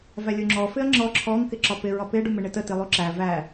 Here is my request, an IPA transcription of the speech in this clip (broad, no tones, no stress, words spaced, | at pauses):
vælʲuŋ͡ǁɔ fɪɐ̯ŋ͡ǁɔ ǁʰɔŋ kɪǁɒpɪ ɹɒpɪ ɖumɪɳɪtə tilˠuǁæ væ